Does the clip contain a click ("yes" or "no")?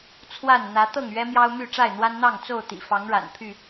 no